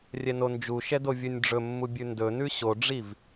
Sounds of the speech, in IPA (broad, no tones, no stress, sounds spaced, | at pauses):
rʲ ɛ n o n d͡ʒ u ʃ ɛ d o vʲ ɵ nʲ ɖ͡ʐ ɵ mː u bʲ ʉ n d ɵ n ʉ ɕ o ɖ͡ʐ i v